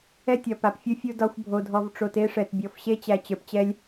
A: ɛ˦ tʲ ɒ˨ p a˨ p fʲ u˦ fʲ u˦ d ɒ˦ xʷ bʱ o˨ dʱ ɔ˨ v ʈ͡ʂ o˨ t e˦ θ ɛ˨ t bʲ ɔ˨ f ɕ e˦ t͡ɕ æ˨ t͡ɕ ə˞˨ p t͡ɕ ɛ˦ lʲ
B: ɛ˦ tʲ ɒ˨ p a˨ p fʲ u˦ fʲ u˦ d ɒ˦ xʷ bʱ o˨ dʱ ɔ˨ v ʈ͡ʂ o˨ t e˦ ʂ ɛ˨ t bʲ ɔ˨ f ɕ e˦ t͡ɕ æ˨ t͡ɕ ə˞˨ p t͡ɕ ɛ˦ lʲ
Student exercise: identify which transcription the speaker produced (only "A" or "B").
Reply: B